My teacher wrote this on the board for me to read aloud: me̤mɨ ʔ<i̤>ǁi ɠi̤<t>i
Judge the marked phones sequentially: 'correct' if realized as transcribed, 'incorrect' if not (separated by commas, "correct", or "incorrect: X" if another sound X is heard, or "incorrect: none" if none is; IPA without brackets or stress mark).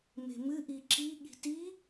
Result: incorrect: i, correct